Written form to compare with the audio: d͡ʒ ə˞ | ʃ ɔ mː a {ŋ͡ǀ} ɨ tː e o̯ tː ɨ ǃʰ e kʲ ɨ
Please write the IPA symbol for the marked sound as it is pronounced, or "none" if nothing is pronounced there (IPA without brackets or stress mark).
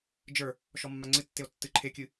ŋ͡ǀ